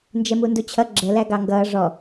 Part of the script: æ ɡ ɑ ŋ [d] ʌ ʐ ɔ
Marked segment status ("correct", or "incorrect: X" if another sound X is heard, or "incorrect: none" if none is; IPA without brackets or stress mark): incorrect: ɡ